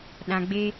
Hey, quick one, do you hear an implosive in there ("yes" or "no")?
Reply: yes